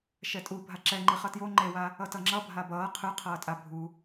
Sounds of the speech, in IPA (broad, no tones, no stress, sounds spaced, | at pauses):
ʃ ɛ tʼ u bʱ a ǁ ɛ ŋ͡ǃ i χ ʌ t j o ŋ͡ǃ e w a | ʌ t ʌ ŋ͡ǁ ʌ bʱ a b ʌː qʰ ɯ qʰ ʌː tʼ a bʱ u